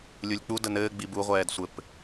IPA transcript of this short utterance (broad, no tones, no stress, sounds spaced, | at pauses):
lʲ u lʲ k͡p u d ə n ɘː ɡ͡b i b u ʁʷ ɛː d sʷ ɘ p